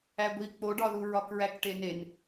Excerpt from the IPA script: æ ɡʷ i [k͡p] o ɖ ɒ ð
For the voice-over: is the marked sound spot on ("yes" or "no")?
yes